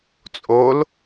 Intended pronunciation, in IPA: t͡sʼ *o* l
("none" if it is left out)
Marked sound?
o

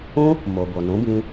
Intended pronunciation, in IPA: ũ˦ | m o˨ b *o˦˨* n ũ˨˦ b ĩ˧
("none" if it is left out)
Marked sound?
o˨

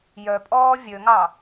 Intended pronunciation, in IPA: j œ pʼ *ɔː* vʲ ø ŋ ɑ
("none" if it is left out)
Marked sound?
ɔː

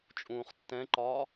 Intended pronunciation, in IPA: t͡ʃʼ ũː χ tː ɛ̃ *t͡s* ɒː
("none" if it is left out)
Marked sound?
ǃ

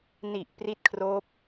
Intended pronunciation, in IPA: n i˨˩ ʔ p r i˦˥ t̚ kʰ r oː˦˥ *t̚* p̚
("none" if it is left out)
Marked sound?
none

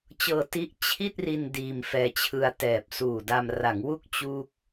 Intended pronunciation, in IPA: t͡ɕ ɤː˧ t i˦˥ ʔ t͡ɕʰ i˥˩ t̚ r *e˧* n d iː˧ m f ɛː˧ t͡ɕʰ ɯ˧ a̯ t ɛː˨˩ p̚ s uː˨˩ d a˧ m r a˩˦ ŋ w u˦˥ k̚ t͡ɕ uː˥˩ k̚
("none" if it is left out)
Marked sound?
i˧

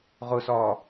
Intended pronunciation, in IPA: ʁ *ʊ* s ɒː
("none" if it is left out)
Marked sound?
ʊ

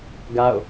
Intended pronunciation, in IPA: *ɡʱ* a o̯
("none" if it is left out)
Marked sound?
ɡ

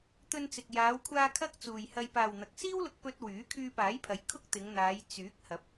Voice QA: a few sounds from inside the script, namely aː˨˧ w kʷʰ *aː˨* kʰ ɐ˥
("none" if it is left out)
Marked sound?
aː˧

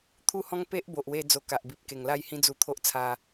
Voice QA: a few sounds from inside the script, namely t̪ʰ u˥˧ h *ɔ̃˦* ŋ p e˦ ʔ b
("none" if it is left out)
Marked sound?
ɔ̃˦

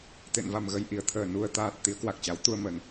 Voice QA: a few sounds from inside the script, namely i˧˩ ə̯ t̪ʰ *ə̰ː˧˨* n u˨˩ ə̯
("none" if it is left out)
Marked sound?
əː˧˩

